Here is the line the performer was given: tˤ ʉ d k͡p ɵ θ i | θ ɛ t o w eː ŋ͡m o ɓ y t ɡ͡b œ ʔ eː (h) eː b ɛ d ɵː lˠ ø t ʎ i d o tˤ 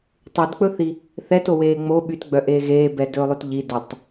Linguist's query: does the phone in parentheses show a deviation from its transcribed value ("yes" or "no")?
yes